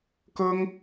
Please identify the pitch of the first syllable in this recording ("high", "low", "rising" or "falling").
high